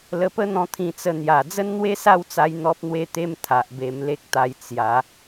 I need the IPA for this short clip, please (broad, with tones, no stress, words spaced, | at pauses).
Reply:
lə˧pə˦n̪ɔ̃˧ t̪ʰĩ˧t͡sə˧ n̪ja˨˩ d͡zə˦nn̪we˦sa˥˧wt͡sa˧j n̪ɔ˦p̚n̪we˥˧t̪e˦m t̪ʰa˨ʔbe˧m le˦k̚t̪a˧j t͡sja˨˦